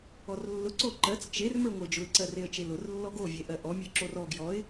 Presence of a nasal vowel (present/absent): absent